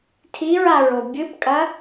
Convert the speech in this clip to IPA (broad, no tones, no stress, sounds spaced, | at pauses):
tʰ i ɹ a ɹ o bʲ ɨ p kʼ ɐ